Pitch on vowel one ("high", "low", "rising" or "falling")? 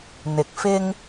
low